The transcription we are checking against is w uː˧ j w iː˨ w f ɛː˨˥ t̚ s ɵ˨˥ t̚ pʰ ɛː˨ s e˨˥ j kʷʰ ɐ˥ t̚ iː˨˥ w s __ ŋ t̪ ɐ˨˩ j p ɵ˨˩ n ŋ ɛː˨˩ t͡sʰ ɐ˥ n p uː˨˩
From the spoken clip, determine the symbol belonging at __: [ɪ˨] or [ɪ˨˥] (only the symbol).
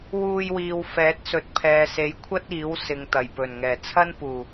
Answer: ɪ˨